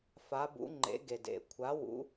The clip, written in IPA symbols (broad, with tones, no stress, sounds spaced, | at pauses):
f a˨˥ b ṵ˨˥ ŋ͡ǃ ḛ˨˥ ɡ e˨˩ d ḛ˨˩ kʷʰ a˨˥ w ṵ˨˥